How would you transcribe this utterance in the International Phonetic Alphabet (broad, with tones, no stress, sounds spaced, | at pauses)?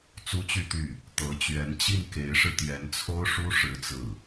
t͡s u˥ t͡ɕ y˥˧ t̪ y˥˩ | t̪ ɤ˧˥ t͡ɕ ɥ ɛ˧˥ n t͡ɕ i˥˩ n k e˧˥ ɪ̯ ʂ ɻ̩˧ t̪ j ɛ˧˥ n t͡sʰ o˥ ʊ̯ ʂ u˥ ʂ ɻ̩˥ t͡s ɹ̩˥˩